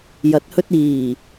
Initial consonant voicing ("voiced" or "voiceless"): voiced